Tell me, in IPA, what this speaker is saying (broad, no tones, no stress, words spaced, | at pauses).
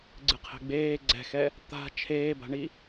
ɡ͡ǀɨqʰɛ̤ɡ͡beː ɡ͡ǀɛ̤xɛ | t̪a̤ t͡ʃʰeːba̤ɳi